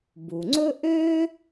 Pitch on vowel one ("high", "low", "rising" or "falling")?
low